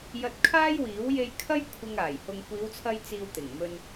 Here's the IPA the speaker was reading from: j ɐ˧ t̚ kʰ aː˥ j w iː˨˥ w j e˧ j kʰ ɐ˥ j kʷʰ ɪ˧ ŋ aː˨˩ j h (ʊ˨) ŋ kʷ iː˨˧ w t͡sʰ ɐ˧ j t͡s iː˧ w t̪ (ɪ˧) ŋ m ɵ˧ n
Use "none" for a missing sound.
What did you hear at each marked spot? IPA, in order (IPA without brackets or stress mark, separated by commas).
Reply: ʊ˨, ɪ˨˩